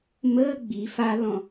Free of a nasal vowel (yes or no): no